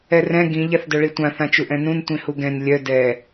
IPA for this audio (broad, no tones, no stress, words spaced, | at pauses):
ɛrɛ̃ ɡĩ ʎaθdœɭitʷã θãt͡ʃuʔɛ̃nũn tʷĩhuɡɛ̃n lʲœ dɛ